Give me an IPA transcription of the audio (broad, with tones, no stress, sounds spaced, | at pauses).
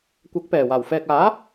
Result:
kʷ ɐ˨˥ k̚ p ɛː˨˩ w aː˨˩ w f ɛː˨ k̚ aː˨˥